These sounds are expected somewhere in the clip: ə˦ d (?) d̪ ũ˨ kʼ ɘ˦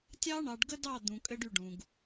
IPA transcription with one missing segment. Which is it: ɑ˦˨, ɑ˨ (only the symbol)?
ɑ˦˨